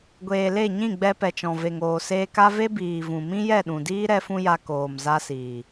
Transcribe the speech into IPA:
ɡʷeː˨le˦˨ ɲĩ˦˨ɡ͡bɛ˧pɛ˨t͡ʃɔ̃˨ ve˨ŋoː˨seː˧ka˦ ve˦biː˨vũ˨ mĩ˦jɛ˦˨ɗũ˨diː˦ ɾɛ˦fũ˦ja˧ koː˨mza˧siː˨

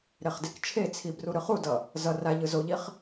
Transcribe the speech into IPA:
ɾeχdekt͡ʃʰet͡sʰi bruɾɯχudʌ | zʌ ra ʎɯzoʎiχ

